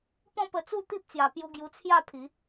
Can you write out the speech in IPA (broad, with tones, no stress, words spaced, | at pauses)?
pɔ̃˥˧pə˧t͡su˥˧ t̪i˦p̚t͡sja˨˩pju˧ ɡju˧t͡sʰja˥˧pʰi˨˦